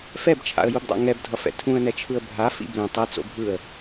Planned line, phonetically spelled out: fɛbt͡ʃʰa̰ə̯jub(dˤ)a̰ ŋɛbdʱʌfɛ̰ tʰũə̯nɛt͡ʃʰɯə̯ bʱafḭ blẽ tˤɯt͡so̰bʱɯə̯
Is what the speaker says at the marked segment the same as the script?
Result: yes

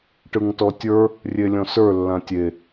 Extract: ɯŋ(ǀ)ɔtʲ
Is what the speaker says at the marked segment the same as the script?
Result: no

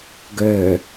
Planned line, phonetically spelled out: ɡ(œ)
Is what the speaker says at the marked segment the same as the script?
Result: yes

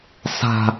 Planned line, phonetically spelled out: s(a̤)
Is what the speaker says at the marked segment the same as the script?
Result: yes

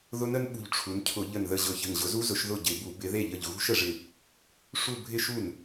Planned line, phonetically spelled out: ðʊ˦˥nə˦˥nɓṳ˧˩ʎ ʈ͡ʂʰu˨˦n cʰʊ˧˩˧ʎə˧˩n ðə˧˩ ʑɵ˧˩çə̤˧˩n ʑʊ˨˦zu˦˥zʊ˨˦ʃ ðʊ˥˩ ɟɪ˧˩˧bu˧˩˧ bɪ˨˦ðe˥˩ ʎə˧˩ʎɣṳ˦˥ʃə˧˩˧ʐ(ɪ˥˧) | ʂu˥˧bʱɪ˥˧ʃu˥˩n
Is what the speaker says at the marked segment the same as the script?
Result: no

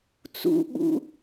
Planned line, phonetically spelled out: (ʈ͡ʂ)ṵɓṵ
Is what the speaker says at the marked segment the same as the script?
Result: no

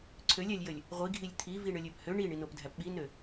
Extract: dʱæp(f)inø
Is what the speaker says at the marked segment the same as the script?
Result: no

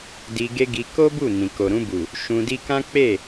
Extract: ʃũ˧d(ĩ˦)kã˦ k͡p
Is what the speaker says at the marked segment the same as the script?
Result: no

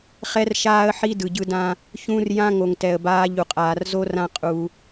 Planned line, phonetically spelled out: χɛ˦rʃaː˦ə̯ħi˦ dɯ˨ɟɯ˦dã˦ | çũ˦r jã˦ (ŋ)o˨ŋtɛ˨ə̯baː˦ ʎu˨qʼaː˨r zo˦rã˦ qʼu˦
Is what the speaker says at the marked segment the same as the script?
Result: yes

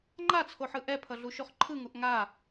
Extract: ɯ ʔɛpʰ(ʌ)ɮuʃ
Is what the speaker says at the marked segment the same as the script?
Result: yes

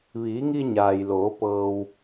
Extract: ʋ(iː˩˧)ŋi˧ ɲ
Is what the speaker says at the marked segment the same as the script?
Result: yes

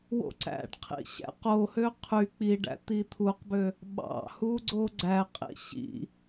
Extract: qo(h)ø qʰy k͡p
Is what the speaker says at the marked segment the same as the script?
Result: yes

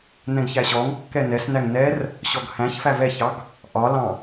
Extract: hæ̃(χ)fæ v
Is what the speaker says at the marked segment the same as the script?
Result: no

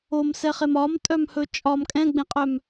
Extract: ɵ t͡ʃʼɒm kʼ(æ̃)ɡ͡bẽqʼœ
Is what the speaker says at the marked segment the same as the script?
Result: no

